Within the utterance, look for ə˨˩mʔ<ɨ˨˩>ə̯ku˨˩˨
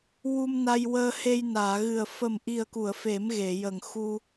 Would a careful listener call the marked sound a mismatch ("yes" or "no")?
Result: yes